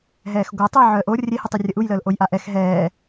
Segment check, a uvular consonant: absent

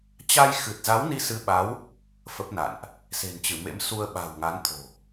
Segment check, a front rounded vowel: absent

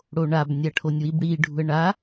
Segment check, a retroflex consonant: present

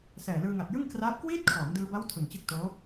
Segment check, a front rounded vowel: absent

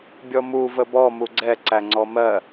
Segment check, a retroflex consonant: absent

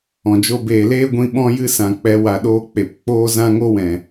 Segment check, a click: absent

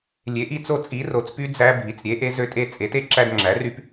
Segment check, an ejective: present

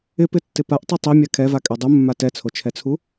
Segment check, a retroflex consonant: absent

